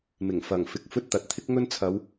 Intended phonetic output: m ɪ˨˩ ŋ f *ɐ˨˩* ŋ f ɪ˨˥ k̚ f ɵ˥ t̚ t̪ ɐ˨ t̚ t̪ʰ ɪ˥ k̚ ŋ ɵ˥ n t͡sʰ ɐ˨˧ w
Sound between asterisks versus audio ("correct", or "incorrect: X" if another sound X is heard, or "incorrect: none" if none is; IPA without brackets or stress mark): correct